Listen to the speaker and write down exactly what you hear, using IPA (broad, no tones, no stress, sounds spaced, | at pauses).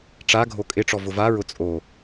ʈ͡ʂ a ɡʱ o kʼ ɪ ʈ͡ʂ ɔ v ʊ v a ɹ ʊ t͡sʼ o